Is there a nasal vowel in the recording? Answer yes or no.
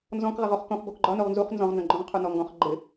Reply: yes